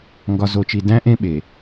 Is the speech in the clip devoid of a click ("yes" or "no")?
yes